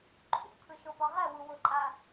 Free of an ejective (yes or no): no